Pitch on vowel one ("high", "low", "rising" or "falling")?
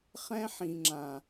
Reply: high